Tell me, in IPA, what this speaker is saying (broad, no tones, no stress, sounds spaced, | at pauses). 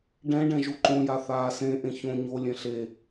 ɖ ɛ̃ ɖ ɛ̃ ʒ u ǃ õ j a θ aː s ẽ ʔ ẽ ç õ ɲ o lʲ ẽ ɬ e